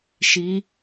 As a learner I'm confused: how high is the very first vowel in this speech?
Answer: high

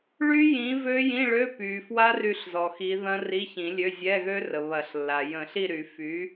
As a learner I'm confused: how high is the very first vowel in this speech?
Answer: high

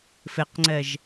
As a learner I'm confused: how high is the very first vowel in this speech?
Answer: mid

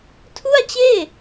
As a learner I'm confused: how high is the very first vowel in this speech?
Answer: high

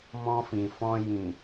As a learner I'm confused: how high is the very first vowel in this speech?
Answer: mid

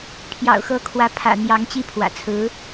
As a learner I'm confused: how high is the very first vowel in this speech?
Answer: low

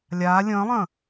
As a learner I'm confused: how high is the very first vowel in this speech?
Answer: low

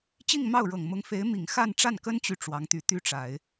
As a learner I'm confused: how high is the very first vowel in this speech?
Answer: high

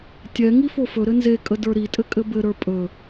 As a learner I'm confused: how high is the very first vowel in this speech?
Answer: mid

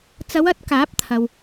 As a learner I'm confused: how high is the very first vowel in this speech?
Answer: low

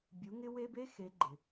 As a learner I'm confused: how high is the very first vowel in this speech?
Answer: high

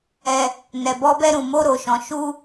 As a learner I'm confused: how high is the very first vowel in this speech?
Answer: mid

